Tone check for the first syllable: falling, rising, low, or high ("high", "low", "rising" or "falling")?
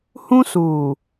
high